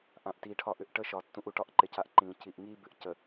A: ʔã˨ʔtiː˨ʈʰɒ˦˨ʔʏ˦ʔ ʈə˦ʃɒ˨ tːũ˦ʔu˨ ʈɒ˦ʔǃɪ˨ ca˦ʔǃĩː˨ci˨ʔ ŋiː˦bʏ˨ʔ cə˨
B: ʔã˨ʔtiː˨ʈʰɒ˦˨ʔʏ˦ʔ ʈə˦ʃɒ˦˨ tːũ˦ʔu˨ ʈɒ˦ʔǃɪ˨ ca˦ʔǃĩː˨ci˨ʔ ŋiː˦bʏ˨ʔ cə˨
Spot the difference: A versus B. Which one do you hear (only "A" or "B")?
A